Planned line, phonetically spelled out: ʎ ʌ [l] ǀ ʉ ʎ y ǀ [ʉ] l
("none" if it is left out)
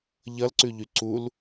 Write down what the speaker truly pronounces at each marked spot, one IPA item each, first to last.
l, u

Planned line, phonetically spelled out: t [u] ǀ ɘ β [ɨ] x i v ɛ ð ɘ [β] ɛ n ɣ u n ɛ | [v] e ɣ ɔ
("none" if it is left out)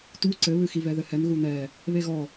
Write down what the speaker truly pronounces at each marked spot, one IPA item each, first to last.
u, ɨ, h, β

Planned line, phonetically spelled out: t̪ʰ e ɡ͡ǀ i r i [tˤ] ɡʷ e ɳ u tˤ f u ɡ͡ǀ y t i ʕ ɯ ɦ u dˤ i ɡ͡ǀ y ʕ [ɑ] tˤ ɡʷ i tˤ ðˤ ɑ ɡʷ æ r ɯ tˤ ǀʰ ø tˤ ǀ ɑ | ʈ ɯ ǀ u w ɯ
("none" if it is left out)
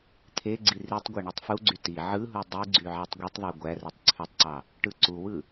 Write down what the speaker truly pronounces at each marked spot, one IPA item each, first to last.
tˤ, ɑ

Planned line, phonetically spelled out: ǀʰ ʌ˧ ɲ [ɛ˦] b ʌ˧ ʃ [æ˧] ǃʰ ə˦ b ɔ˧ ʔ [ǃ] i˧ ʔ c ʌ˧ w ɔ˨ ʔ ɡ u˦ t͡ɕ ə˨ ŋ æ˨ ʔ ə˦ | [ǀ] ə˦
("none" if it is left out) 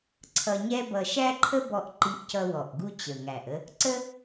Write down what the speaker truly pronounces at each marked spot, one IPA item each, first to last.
ɛ˦, æ˦, ǃ, ǀ

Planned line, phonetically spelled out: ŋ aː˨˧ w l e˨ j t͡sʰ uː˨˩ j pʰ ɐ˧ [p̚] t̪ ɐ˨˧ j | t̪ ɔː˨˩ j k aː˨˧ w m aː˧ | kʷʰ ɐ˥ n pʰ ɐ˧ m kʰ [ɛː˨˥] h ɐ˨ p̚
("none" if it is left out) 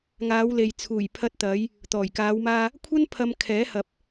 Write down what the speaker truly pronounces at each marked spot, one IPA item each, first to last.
t̚, ɛː˨˥

